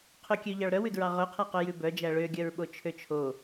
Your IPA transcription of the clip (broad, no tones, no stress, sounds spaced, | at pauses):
qʰ ø kʲ ø ʎ ɑ ɭ ɾ œ w ʉ d ɹ ɑ ʁ œ qʰ æ q œ j ʉ b œ d͡ʒ æ ɭ ø ɡʲ œ ɹ ɓ o t͡ʃʰ ø t͡ʃʰ o